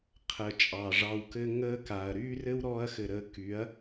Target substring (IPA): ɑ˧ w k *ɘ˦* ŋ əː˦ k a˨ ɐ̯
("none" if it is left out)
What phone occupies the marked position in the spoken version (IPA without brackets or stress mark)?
ɘ˦